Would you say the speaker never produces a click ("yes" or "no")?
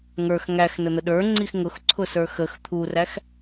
no